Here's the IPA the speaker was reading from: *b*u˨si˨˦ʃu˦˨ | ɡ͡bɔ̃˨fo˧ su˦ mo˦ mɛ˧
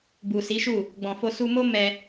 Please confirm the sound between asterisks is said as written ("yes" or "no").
yes